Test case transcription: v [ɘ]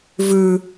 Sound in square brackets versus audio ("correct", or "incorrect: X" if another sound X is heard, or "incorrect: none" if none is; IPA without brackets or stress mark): incorrect: ʉ